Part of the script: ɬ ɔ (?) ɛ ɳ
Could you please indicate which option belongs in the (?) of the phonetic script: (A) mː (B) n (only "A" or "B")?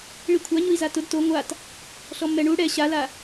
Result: A